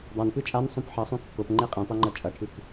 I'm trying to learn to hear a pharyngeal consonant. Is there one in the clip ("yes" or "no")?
yes